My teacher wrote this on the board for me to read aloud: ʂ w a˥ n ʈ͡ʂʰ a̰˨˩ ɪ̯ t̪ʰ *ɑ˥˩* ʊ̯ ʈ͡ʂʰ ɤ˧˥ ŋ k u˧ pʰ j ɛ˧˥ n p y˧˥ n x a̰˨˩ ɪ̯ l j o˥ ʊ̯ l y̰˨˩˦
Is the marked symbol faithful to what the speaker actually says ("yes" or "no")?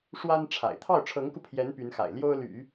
yes